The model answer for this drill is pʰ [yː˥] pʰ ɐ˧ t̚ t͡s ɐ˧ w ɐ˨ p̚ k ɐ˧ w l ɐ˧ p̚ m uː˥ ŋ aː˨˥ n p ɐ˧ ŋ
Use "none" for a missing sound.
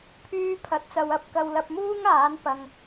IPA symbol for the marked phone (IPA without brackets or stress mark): yː˥